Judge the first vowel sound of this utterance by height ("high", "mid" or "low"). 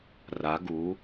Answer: low